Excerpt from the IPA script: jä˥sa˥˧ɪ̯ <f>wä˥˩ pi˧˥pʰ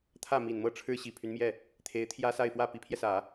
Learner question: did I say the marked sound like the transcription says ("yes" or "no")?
yes